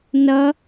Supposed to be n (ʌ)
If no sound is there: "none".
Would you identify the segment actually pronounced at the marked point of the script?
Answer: ʌ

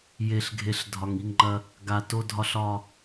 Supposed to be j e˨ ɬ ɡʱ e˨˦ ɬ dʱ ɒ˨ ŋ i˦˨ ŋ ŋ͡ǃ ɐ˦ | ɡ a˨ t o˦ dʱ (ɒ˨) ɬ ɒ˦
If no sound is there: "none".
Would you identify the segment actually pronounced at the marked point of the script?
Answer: ɒ˦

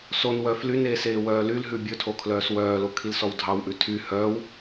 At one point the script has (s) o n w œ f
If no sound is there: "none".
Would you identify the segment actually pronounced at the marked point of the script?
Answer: s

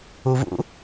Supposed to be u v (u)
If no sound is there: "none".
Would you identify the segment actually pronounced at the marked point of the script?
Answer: ṵ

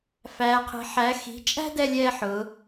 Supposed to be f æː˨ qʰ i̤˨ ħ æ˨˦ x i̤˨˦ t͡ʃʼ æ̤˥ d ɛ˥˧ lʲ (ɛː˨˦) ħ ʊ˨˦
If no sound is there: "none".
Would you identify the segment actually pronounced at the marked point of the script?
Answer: ɛː˥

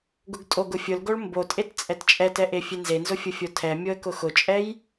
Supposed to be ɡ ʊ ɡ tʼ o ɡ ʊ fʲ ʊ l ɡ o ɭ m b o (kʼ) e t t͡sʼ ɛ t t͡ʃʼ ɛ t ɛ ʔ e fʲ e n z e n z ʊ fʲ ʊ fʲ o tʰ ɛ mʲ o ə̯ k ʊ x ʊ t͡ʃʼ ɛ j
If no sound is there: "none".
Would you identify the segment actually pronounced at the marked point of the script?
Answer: tʼ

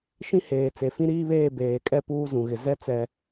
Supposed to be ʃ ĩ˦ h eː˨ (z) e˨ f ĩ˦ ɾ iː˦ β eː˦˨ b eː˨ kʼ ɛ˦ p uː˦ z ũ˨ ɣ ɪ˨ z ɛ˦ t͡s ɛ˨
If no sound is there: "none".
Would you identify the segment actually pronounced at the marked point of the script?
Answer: t͡s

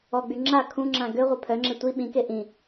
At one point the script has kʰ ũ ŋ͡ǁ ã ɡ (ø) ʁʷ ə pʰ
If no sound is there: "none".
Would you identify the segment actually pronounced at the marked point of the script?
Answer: ø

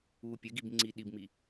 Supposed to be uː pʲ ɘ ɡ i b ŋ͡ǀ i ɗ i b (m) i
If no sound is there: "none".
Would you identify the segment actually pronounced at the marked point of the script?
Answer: m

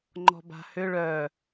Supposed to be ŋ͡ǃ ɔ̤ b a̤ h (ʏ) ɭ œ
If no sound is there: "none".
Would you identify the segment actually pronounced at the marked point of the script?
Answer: ʏ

